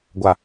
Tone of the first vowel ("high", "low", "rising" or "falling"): low